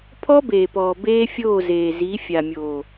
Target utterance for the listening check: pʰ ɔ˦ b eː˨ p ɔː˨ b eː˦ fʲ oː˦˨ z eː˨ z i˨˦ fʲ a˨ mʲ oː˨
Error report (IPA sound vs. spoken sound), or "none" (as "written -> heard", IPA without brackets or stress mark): none